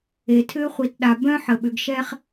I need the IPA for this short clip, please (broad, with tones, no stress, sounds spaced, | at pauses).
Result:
e˨ tʰ ʏː˦ χʷ i˨ t ɗ a˨ b œ̃˦ ħ ə˨ ɓ ʏ˨ ɡ ʃ ɛː˦ χ